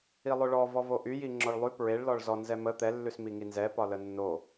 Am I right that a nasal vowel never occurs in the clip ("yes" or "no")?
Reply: yes